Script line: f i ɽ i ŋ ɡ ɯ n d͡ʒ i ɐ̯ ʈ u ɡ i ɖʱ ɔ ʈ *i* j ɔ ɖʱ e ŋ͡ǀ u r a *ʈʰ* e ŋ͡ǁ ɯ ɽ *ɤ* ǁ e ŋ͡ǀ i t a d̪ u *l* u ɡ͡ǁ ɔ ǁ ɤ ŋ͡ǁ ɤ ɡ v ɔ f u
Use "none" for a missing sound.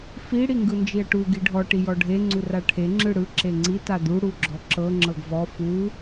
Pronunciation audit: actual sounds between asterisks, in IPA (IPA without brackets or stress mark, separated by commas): i, ʈʰ, ɯ, ɽ